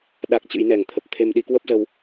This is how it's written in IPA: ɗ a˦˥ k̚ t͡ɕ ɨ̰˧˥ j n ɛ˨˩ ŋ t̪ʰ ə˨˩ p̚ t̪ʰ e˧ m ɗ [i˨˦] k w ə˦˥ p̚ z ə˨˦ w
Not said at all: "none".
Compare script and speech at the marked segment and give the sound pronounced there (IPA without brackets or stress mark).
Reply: i˨˦